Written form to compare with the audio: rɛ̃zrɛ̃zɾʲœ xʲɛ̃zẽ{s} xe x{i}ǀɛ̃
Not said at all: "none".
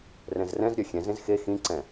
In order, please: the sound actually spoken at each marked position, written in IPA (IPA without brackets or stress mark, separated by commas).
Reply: z, ĩ